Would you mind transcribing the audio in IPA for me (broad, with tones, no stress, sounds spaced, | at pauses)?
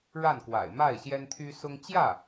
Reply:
ɻ a˥˩ n k w a̰˨˩ ɪ̯ m a˥˩ ɪ̯ ɕ j ɛ˥ n t̪ʰ y˥ s ʊ˥ ŋ t͡ɕ j ä˥˩